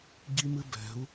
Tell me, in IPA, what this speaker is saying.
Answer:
ɟi˦mɨ˦bɛ̤˨˦u̯

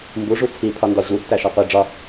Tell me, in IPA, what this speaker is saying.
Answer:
mbu ʐut͡sʰi pʰɒndɒʑu tːæʃɒqʷi ɖ͡ʐɒ

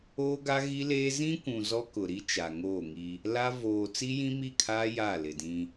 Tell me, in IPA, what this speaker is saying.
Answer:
oː˦ɡa˦ɣi˦leː˦ zĩ˦kʷũ˨ zɔ˦kʊ˨ɾi˦ t͡ʃa˨ŋoː˦˨ŋi˦ | la˦ voː˨ t͡si˦jĩ˦mi˦˨kʰaː˦ ja˦˨lɪ˨dĩ˦

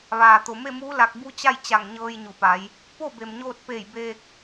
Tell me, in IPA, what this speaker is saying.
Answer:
ʋaː˩ t̪o˩me˥˨muː˧˥ la˧k̚ bu˧˥t͡ɕa˥˨j t͡ɕa˧˩ŋɲɤː˧j ɲu˩pa˩˧j | po˥˨be˩mɲoː˧t̚peː˧˩j beː˧k̚

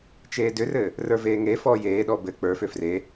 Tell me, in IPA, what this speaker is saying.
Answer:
t͡ʃeːdʏrɘː | rə˞veːŋefɔː jeːɗɔ bɘ k͡pə˞fʏ fre

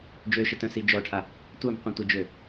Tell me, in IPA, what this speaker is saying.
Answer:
d͡ʒøʃətœ̃si d͡ʒɔʈʰa | tʷœmqʷĩ tʷəd͡ʒø

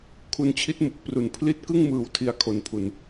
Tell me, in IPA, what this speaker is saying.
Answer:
kʰu˧nt͡ɕʰi˦˥t̚mu˨˩k̚pru˩˦n pʰli˥˩t̚ kɯ˥˩ŋmɯː˨˩w tʰi˦˥a̯kʰo˨˩npʰu˨˩n

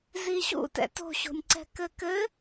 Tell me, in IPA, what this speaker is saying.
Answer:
ziɕṵtɛ̰ to̤ɕo̤nʲǀɛ̤ kɘkɘ

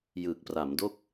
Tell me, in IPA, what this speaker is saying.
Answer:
jɯː˨˩k̚ pra˩˦mdo˥˩k̚

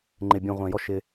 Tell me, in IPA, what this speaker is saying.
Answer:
ŋ͡ǃɪ˨bʲũ˨ʁʷɛ̃˨jɔ˦ʃ ɪ˦

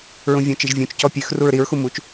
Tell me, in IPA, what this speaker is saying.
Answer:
ɹũvʲõt͡ʃiʒvʲũt͡ʃ cɔpʲʉx ruɹɾiɹ xumut͡ʃ

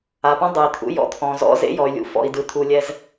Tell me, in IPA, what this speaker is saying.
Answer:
a˨pɔ̃˦ dˤɯ˨i̯ t̪ʰṵ˦jɔ̰˦ t̪ʰɔ̃˨zɔ̰˦ zḛ˦jɔ˨y̯lʲṵ˨ fɔ̰˨i̯ dɯ˨t̪ʰu˨lʲɛ˦z

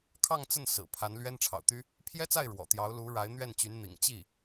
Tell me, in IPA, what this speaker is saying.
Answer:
kʰɑ˥˧ŋt͡sə˥˩n sɹ̩˨˩ pʰa˧˥nlɥɛ˥nʈ͡ʂʰɑ̰˨˩ʊ̯t̪y˥ | pʰjɛ˥t͡sa˥˩ɪ̯ ɻwɔ̰˨˩t̪jɑ˧˥ʊ̯lu˧˥ ɻa˧˥ɪ̯n̪ɥɛ˥˩nt͡ɕy˧˥n n̪ḭ˨˩ŋt͡ɕi˥˩

